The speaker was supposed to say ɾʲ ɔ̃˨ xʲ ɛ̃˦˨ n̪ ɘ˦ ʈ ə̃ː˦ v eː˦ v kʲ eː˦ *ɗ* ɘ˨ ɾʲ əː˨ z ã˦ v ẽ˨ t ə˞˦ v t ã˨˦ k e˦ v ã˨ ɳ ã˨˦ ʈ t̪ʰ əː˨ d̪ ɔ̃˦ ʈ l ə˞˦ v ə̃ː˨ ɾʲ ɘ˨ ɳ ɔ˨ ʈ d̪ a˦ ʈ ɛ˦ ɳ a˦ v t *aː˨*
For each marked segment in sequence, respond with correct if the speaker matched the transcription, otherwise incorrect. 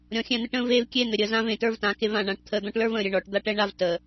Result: incorrect: n̪, incorrect: əː˨

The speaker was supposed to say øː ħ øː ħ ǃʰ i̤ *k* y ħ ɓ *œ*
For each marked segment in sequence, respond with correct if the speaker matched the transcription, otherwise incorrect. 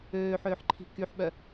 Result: correct, correct

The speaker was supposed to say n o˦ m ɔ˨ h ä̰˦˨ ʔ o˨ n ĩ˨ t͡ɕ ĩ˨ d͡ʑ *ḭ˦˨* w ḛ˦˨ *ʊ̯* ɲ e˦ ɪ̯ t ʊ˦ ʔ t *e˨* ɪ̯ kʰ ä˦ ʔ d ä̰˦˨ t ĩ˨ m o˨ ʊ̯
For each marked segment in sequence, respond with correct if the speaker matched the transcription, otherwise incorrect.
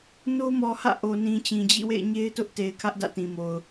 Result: correct, incorrect: ɪ̯, correct

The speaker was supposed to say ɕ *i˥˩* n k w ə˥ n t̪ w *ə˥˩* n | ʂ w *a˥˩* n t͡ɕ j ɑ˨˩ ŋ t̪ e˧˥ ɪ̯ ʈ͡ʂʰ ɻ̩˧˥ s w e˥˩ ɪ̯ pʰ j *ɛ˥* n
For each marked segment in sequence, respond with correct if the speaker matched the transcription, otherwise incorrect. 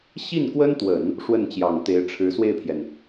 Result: correct, incorrect: ə˨˩˦, incorrect: ə˥˩, incorrect: ɛ˩

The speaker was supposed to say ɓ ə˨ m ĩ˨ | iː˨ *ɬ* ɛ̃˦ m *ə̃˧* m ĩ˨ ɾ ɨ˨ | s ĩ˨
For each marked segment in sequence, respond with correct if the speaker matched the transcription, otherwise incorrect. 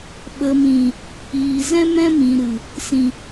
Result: incorrect: z, incorrect: ɛ̃˧

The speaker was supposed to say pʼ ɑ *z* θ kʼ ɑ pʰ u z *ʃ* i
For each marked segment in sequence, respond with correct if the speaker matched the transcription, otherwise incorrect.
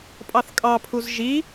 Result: incorrect: none, incorrect: ʒ

